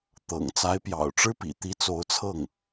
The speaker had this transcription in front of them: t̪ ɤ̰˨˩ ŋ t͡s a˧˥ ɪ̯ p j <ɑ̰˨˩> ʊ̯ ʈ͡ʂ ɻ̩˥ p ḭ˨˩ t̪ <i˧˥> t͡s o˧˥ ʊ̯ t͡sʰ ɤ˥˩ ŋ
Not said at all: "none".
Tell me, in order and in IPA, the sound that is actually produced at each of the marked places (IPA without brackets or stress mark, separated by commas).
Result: ɑ̰˨˩, i˧˥